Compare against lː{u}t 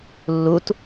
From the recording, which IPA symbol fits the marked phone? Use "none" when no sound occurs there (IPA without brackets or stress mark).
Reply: u